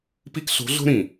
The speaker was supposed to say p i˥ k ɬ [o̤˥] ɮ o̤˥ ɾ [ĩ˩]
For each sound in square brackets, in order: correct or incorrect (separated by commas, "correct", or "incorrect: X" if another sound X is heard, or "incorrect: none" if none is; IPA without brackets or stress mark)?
incorrect: o̤˧˥, correct